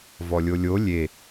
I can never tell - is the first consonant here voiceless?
no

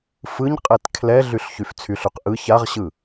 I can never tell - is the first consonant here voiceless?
yes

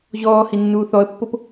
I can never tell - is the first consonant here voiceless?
no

